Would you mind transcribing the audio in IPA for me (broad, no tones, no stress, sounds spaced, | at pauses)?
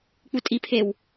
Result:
k͡p u tʼ i pʰ e w